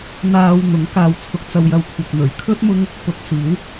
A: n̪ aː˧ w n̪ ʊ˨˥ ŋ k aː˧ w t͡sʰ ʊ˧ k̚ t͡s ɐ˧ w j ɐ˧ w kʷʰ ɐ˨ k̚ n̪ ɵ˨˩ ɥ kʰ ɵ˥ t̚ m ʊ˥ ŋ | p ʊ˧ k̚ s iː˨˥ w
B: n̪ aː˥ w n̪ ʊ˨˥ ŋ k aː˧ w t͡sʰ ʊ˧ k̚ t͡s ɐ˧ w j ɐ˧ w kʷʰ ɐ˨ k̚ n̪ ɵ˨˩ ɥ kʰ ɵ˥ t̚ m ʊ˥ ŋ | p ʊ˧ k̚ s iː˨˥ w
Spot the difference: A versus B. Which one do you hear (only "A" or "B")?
A